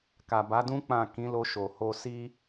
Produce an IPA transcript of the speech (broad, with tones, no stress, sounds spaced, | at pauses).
k a˨ b a˨˦ d ũ˦ k͡p ã˦˨ k ĩ˨˦ l o˧ ʃ o˨ h o˧ s i˦